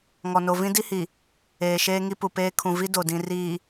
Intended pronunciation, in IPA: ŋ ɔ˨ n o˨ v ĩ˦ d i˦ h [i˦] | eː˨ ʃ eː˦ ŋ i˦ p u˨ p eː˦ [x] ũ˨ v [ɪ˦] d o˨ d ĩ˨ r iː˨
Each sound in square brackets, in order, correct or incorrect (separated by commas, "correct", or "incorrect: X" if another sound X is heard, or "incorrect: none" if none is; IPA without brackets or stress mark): incorrect: i˨, incorrect: kʰ, incorrect: i˦